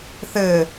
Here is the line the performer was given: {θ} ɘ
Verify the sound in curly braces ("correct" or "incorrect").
correct